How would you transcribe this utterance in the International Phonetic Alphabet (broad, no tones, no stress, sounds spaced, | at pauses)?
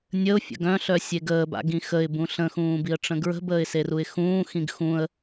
nʲ ə ʊ̯ fʲ ə̰ ɡ œ̃ ɬ œ sʲ e ɡ əː b a̰ ɡ ĩ x ə ɪ̯ b ũ ɬ ə̃ x ũː b i ə̯ ʈ͡ʂ ə̃ ɡ ɹ ə̤ b əː ɪ̯ s e r u ɪ̯ x ũː x ĩ ɡ x ũ ə̯